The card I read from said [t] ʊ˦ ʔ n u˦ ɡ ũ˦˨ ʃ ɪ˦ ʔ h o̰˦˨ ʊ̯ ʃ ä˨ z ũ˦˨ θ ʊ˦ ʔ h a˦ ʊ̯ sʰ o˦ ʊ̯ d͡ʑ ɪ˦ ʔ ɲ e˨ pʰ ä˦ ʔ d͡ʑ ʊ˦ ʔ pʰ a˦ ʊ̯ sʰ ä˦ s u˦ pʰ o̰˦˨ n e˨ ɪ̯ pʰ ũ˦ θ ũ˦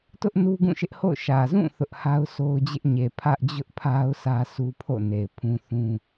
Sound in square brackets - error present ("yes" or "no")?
no